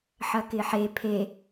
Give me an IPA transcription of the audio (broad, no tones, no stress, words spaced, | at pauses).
ħɐkɪħe pʰe